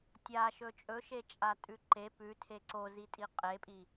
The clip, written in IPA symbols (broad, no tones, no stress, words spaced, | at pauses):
tʲaʃɵ t͡ʃʼɵʃet͡ʃʼatʼʉ ǃe pʉtʰe ǀozitʼi qʼepʼi